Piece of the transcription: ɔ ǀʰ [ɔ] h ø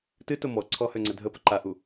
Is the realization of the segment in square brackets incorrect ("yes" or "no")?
no